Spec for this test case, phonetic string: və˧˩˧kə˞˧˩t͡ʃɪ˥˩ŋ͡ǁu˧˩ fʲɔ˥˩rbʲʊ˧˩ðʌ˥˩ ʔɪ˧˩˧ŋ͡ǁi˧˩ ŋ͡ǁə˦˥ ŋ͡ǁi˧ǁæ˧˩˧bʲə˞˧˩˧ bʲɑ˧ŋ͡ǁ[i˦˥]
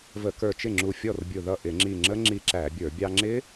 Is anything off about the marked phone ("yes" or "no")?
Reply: yes